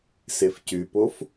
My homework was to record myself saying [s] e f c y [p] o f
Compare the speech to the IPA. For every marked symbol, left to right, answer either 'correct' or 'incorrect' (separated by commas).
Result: correct, correct